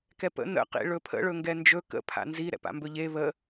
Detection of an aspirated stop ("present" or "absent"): present